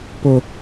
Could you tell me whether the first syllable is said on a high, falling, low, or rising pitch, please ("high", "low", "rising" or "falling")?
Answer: high